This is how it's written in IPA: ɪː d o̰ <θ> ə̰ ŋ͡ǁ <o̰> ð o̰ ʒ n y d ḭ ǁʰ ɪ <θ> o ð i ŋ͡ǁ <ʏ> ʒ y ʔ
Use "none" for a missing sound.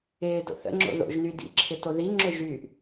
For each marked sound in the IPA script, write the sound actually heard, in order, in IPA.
θ, o̰, t, ʏ

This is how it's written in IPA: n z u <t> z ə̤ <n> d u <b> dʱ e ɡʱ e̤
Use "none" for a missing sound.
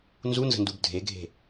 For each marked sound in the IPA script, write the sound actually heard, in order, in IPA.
n, n, b

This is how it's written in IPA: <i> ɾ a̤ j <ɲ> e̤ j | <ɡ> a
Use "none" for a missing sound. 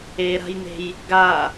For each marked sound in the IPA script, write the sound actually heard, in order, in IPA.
e, n̪, ɡ

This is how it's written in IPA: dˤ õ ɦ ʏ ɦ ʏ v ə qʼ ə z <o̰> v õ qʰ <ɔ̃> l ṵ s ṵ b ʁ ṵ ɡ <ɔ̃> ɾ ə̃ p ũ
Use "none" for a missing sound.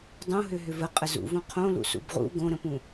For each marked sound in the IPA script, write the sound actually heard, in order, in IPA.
ṵ, õ, õ

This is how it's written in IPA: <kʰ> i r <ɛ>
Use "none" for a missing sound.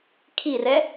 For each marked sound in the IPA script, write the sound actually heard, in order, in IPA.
kʰ, ɛ

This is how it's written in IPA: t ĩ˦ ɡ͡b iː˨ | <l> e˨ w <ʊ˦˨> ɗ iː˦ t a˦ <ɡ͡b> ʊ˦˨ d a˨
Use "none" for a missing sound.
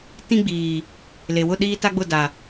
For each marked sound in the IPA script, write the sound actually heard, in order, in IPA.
l, ʊ˦˨, ɡ͡b

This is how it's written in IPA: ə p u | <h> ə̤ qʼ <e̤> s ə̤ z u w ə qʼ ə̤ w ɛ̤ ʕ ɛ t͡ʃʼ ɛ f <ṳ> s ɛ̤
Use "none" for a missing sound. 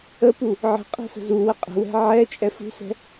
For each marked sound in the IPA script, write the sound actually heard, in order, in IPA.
ʕ, ɛ̤, ṳ

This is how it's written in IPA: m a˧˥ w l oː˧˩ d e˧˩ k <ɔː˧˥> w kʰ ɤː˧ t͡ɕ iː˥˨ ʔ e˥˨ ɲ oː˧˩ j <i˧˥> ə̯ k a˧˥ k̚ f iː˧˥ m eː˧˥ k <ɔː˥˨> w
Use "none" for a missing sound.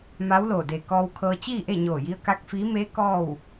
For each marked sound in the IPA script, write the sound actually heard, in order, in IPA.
ɔː˧, i˧˥, ɔː˥˨

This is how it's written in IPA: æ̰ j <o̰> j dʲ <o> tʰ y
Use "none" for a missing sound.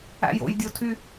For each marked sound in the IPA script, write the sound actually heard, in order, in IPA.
o̰, o

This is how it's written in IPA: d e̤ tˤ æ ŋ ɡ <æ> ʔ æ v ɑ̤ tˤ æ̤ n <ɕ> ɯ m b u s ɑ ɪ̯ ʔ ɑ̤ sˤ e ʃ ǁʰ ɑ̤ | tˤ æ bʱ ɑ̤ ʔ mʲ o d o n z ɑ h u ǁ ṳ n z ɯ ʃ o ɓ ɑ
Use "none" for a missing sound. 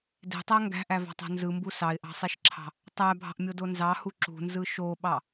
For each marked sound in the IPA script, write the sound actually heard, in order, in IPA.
æ̤, z

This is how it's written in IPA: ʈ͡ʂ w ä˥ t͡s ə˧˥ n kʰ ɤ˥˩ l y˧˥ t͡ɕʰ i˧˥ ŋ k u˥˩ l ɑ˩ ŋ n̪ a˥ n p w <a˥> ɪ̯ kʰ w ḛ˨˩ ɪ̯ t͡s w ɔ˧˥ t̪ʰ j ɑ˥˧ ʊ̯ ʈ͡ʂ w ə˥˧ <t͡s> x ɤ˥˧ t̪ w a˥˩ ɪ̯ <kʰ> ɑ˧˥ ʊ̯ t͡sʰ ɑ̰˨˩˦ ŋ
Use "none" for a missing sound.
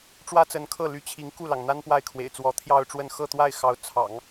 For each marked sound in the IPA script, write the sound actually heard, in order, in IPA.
a˥˩, n, x

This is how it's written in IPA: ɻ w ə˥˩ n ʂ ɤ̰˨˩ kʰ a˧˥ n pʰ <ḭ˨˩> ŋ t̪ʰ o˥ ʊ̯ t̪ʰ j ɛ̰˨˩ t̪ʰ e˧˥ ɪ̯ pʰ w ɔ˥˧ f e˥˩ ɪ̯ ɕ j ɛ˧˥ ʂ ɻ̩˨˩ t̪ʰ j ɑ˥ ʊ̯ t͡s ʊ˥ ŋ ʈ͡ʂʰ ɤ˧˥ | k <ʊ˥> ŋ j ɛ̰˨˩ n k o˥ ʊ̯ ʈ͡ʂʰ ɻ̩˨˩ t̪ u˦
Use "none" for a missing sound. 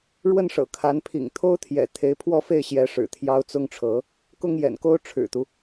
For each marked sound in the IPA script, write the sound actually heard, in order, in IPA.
ḭ˨˩, ʊ˥

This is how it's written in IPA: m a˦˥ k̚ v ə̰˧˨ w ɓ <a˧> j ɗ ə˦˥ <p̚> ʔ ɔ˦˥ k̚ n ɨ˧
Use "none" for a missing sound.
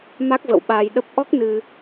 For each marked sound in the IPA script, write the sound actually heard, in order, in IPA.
aː˧, p̚

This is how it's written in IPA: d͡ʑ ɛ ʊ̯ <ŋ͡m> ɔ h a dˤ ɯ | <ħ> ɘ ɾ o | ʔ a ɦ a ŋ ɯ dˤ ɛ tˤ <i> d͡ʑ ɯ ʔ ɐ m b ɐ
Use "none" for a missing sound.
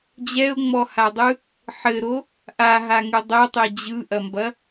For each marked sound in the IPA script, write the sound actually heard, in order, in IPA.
ŋ͡m, ħ, e

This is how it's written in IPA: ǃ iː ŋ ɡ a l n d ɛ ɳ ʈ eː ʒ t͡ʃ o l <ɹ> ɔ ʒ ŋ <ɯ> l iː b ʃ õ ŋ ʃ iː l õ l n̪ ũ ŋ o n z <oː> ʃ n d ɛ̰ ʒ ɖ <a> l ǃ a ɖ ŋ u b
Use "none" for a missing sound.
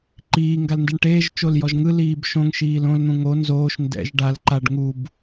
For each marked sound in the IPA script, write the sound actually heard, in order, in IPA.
j, ɯ, oː, a

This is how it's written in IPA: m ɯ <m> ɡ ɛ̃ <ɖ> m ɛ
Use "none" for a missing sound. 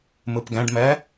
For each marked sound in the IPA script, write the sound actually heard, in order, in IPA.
p, ɖ

